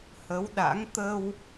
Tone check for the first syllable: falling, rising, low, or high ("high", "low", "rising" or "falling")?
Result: rising